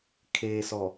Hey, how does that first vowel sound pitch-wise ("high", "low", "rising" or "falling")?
low